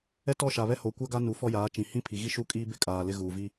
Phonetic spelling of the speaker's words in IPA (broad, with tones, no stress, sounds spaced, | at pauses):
ɛ˦ t ɔ˦˨ ʃ a˨ β ɛ˦ h o˨ kʷ a˦ ɡ a˦ n u˨ f ɔ˦ j aː˨˦ t͡ʃ ĩ˨ h ĩ˦ pʰ i˨ ɣ i˦ ʃ u˦ kʼ iː˦ b ɪ˦ kʼ aː˨ l ɪ˦ ɣ uː˨ v i˦